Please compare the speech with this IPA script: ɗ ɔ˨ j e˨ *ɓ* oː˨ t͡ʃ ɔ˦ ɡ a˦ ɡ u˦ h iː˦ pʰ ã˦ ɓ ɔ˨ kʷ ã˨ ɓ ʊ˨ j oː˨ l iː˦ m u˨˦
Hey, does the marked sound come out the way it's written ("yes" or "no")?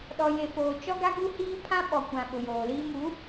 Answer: no